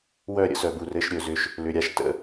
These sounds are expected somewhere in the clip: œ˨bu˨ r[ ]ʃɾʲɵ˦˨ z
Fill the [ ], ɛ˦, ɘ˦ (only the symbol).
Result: ɘ˦